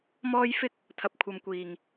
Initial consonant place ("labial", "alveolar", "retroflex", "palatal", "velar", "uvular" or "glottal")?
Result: labial